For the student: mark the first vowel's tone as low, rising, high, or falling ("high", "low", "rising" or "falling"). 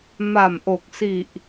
low